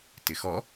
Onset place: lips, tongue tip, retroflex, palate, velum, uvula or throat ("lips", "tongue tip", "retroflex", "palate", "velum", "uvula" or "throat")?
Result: tongue tip